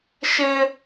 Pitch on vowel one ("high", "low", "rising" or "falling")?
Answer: high